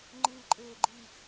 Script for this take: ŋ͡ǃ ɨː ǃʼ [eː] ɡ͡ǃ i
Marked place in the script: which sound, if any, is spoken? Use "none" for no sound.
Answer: eː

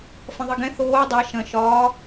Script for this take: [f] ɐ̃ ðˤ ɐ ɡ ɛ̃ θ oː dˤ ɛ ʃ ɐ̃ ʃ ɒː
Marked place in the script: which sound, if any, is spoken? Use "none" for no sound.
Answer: f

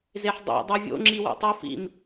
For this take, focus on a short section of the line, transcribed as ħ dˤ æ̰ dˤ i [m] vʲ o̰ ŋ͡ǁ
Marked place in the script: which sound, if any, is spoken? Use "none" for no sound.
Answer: none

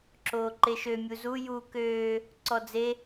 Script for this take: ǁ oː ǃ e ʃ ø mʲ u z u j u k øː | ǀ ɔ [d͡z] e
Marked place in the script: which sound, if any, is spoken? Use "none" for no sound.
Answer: d͡z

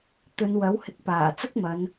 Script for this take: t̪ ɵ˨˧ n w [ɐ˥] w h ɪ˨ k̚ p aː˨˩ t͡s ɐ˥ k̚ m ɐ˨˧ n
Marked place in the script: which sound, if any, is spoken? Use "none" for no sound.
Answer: ɐ˨˥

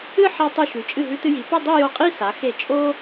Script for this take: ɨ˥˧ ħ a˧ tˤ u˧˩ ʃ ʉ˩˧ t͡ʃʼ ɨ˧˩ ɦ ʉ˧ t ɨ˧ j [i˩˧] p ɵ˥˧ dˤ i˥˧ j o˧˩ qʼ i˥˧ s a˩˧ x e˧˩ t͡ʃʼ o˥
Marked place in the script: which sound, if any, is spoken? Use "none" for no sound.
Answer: i˩˧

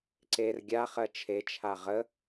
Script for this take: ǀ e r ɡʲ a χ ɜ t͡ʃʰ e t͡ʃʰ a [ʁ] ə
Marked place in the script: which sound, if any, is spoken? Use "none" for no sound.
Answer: ʁ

